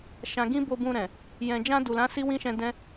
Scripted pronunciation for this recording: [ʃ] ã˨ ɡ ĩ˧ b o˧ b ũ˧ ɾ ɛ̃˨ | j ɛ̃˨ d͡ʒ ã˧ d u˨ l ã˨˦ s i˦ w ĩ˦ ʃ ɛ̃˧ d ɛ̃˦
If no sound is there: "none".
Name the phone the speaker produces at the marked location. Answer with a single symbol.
ʃ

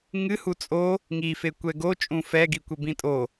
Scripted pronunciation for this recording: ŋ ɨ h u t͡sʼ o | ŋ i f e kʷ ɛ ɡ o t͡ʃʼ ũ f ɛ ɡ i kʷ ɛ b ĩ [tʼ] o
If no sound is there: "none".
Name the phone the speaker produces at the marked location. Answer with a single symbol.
tʼ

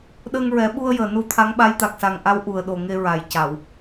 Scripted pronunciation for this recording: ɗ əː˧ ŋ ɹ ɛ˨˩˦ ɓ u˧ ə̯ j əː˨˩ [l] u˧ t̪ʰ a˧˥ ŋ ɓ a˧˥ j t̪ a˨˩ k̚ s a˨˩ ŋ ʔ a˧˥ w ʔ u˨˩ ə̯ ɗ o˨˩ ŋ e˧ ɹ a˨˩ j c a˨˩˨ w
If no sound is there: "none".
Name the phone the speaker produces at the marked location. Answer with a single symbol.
n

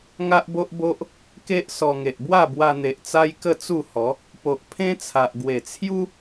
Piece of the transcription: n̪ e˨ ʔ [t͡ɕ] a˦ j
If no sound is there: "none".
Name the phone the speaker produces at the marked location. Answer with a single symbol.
t͡s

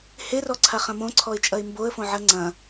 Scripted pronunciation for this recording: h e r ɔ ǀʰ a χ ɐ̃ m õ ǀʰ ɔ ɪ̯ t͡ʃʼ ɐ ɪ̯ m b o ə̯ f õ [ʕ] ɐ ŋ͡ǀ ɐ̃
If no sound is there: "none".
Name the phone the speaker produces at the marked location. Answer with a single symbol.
ʕ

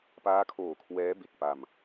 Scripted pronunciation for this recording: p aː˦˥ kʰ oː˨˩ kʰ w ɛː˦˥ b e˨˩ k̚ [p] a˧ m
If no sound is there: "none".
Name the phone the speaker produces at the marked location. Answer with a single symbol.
p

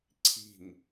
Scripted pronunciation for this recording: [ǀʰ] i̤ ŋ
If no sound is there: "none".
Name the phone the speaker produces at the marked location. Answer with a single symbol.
ǀʰ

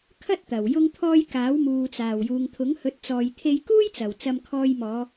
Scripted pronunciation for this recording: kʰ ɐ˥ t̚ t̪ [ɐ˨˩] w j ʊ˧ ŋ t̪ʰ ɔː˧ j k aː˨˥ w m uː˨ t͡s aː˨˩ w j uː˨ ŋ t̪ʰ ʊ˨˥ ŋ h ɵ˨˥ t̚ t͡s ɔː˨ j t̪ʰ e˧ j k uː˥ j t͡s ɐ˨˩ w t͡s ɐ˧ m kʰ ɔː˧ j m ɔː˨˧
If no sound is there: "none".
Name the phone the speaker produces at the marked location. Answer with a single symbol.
ɐ˨˩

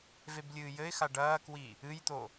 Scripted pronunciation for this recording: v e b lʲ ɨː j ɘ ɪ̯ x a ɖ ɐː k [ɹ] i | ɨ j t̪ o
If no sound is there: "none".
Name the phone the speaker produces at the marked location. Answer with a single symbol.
w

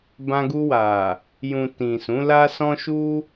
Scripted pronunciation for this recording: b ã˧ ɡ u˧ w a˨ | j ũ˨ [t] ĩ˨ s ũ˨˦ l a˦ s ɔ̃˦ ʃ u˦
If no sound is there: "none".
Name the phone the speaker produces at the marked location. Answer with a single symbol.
t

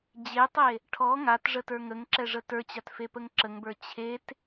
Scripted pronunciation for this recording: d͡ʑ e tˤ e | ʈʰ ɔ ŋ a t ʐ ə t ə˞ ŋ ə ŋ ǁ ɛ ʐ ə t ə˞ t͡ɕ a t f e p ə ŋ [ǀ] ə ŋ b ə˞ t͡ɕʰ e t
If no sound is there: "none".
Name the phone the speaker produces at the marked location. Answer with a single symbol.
ǁ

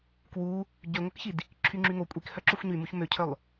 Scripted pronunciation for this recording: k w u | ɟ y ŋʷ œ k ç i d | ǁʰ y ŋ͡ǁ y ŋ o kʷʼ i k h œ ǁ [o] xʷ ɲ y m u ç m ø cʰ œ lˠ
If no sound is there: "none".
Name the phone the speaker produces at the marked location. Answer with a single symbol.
o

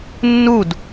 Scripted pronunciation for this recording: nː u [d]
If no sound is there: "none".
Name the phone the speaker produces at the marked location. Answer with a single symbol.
d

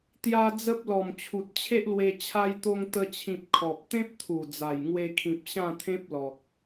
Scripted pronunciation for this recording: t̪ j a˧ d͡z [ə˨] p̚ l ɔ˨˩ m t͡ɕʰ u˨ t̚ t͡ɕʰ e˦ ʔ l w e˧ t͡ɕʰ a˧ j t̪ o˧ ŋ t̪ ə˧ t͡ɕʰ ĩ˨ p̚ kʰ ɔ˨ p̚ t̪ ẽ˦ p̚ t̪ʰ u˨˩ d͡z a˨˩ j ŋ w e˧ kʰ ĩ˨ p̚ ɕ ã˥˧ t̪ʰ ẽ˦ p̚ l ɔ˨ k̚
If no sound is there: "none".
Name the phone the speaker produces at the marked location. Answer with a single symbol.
ə˦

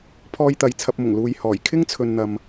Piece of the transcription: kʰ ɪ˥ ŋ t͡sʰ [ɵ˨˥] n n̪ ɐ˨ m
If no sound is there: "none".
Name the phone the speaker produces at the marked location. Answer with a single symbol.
ɵ˨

